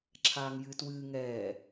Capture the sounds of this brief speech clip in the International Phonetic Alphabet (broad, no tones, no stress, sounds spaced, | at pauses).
ǁʰ aː ŋ j ɨː t w ɨː ŋ ɛː